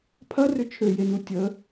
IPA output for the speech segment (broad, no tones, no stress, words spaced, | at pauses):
pʰɐrʏ t͡ʃʰøjenu tʲə